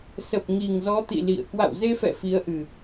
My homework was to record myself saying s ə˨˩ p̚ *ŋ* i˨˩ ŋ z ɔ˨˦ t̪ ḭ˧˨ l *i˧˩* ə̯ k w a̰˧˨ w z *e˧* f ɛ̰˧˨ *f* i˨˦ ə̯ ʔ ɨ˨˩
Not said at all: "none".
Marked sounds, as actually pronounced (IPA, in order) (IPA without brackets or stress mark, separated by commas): ŋ, ḭ˧˨, e˧, f